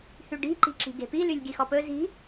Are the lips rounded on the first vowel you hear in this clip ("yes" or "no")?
yes